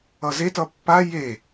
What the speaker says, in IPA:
ʌzetʌ pːa je

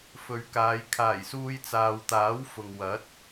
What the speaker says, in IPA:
fɵ˨ɥkaː˨˧j kʰaː˨˩jsuː˧j t͡saː˨wt̪aː˨˥wfʊ˨ŋ wɐ˨˥t̚

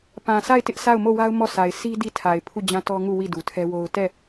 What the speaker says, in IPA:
pã˨sʰa˦˨ɪ̯tɪ˦ʔ sa˦˨ʊ̯mo˦˨wa˦ʊ̯ mɔ˦˨sa˨ɪ̯ si˦ di˦˨tʰa˨ɪ̯ pʰu˦˨d͡ʑã˦tɔ˦ŋu˦˨ wi˦˨du˨tʰɛ˦wo˦ʊ̯ tɛ˦˨

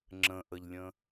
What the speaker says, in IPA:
ŋ͡ǁə̃ʔəʎlʲə̃

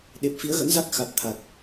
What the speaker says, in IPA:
ɗe˨˩p̚ fi˨˦ə̯ɣə̰˧˥nza˦˥k̚ xa˨˩t̚ t̪ʰa˨˩t̚

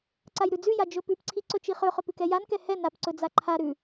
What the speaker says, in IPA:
ǀajɾʉd͡zʉja d͡ʒɵpʉpǀʰi ǀɵt͡ʃiχɵχɵp ʉkɛjankɛ hɛ napǀɵ d͡zaǃʰaɾʉ

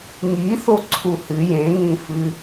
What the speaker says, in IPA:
ŋi θoǀʰuhɨ jẽŋĩfɨ

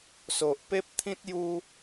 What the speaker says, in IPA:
so˨ʔpe˦p̚t̪ʰĩ˦t̚ ju˦

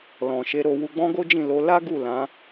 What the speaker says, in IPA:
lɔ̃˨ʃe˧ɾo˧ wu˧ɡ͡bɔ̃˦ɡo˦ d͡ʒĩ˦˨lo˨˦ la˦ ɡu˦˨lã˨˦

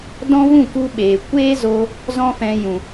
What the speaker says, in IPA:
dɔ̃˦vũ˦˨ku˧ ɓeː˨ kʷeː˦zo˧ | zɔ̃˦fɛ̃˧ jũ˨

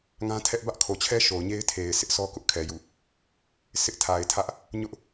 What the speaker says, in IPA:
ŋã˦tʰɛ˦ʔ bä˦ʔkʰo˨t͡ɕʰɛ˦ ʃo˨ʊ̯ɲe˦ɪ̯tʰe˨ɪ̯ sɪ˦ʔsɔ˦kʊ˦ʔkʰɛ˨ jṵ˦˨ | sɪ˦ʔtʰa˨ɪ̯tʰä˦ʔ | ɲʊ˦ʔ

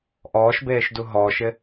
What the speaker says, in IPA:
ʔɔːʃbeːʃdu ɦɔːʃɪ

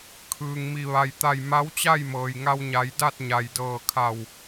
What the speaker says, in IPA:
kʰɯː˩ŋmi˧˩ ʋa˩jt̪a˧˩j ma˧˥wt͡ɕa˥˨jmɤː˩j ŋa˧wɲa˩˧j da˥˨t̚ɲa˩jdɤː˧˩kʰa˧˩w

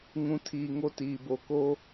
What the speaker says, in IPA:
ŋũ˨ tʰiː˨ ŋo˦tiː˨ bo˨ko˦

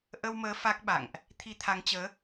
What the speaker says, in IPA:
ʔə˧wməː˨˦ fa˦˥k̚ ɓa̰˧˨ŋʔ | t̪ʰi˧t̪ʰa˨˦ŋt͡ɕəː˨˦

